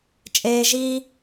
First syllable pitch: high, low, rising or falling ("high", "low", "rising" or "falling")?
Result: high